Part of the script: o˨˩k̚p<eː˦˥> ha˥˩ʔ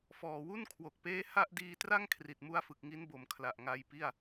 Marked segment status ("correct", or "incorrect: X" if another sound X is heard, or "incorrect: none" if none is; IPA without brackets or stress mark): correct